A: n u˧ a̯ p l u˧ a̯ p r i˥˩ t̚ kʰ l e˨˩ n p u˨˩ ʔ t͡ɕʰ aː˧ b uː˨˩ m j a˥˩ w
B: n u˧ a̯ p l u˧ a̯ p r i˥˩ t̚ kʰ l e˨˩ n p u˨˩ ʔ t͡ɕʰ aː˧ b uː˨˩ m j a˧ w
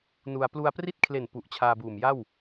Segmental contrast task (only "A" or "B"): A